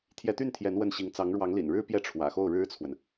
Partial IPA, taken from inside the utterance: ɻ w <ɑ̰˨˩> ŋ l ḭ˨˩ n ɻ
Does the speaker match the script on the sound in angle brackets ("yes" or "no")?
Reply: no